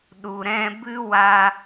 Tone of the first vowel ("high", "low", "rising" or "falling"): low